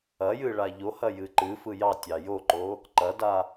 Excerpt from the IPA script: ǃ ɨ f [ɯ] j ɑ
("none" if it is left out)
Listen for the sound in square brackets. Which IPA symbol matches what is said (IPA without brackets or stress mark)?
ɯ